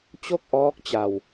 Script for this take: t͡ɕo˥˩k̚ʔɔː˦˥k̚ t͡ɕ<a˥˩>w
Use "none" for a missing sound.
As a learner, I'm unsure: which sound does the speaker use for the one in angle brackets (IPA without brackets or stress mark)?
a˧